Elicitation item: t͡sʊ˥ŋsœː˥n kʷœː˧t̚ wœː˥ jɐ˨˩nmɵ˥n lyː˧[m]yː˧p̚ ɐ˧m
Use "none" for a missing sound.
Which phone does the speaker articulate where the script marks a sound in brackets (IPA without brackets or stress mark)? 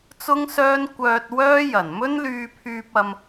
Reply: pʰ